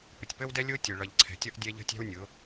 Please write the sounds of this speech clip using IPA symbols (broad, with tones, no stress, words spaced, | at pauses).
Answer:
pə˨tʲpəː˦wdɛ˦ lʲʊː˦tʲə˨ ɭʌ˨ʎ ǀʰɛ̤˨tʲʌ˦ʔ dʲɛ˦ʎə̤˦tʲæ̤˦wnʲʊ˨˦